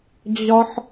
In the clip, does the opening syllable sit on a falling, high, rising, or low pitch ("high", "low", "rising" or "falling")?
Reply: high